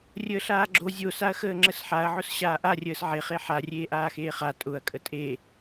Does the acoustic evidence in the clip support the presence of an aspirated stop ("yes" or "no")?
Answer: no